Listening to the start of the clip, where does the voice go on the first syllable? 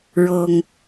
low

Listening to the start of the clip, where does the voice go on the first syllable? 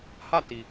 falling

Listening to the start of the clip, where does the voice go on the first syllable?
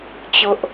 high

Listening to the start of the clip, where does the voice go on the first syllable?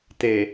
low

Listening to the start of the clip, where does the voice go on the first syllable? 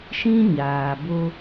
high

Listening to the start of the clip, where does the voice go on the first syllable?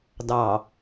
low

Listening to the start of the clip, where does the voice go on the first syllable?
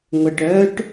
low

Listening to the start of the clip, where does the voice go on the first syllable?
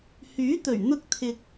rising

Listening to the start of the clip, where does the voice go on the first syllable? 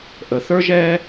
low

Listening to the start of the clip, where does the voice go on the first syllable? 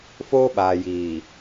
high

